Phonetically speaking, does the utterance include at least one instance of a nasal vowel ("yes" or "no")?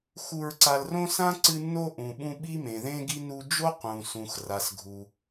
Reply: yes